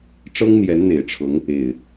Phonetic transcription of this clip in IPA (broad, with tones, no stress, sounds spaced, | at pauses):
ʈ͡ʂ ɤ˦ ŋ n̪ j ɛ˨˦ n n̪ e˨˩ ɪ̯ ʈ͡ʂʰ ɤ˨˦ ŋ | e˨˩ ɪ̯